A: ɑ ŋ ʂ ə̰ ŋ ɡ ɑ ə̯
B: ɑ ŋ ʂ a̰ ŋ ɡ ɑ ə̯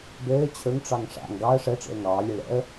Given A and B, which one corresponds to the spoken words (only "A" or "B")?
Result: B